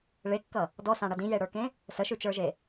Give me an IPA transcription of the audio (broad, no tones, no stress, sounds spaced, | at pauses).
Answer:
ɭ e kː ʌ | d ɔ s ã ɽ ʌ d ĩ j e ɽ ə˞ k ẽ | s ə ʃ ʉ t͡ʃ ə˞ ʒ e